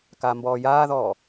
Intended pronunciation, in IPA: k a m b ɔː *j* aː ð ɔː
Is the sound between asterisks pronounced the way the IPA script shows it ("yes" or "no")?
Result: yes